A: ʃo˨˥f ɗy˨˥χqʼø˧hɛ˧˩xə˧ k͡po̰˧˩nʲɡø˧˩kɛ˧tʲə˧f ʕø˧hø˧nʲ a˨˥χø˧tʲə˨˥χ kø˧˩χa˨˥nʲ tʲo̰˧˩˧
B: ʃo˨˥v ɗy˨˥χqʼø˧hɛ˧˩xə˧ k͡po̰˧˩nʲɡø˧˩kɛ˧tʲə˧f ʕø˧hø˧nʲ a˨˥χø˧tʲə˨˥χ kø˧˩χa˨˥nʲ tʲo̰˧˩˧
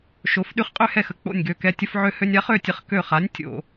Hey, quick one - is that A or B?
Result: A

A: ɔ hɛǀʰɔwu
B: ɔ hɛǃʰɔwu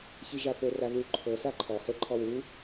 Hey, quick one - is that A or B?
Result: B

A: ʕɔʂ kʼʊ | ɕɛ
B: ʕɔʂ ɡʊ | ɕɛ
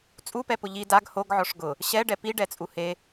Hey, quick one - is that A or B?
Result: B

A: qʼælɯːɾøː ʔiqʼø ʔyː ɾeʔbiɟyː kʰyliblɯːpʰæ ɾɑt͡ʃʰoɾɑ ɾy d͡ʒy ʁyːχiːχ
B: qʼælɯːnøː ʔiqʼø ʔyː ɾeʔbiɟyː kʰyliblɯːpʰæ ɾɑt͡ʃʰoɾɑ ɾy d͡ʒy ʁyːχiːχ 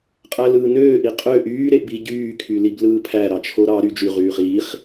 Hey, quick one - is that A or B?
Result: B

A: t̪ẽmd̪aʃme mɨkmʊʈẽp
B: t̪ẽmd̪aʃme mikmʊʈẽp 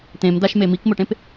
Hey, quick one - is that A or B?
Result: B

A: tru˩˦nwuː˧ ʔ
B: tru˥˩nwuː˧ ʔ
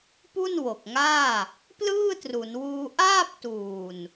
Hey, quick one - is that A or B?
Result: A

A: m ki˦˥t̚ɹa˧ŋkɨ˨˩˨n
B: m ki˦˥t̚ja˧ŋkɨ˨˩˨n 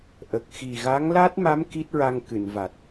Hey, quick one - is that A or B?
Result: A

